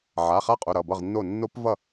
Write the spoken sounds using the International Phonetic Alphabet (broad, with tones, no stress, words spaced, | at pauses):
ʕa˩˧˩χa˦˥qʼo˩˧˩ ɾʌ˩˧˩bʌ˥˨ʁnːo˥˨ nːo˦˥pvʌ˥˨